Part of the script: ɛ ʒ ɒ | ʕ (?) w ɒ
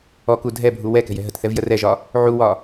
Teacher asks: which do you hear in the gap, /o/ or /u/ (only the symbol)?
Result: u